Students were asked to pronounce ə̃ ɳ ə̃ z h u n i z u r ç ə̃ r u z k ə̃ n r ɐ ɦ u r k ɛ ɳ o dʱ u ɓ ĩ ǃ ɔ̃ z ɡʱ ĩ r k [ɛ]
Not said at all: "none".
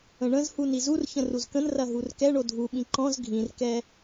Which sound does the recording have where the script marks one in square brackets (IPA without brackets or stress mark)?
ɛ